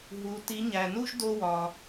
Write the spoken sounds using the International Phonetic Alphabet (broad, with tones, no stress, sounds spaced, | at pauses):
ɦ u˩˥ t i˩˥ ɲ æ˩ n u˥ ʒ d o˥ w ɒ˩